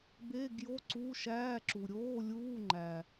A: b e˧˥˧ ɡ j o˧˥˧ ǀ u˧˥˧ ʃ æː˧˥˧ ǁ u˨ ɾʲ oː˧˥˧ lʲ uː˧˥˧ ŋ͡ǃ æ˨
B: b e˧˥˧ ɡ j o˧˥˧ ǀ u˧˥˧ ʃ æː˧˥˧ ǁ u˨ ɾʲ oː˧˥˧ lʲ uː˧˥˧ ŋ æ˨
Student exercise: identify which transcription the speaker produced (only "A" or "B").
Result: A